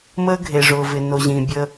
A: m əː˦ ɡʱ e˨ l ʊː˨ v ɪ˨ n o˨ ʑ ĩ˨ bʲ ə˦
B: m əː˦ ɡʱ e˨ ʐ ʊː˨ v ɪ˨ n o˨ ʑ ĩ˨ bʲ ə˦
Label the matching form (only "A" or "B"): B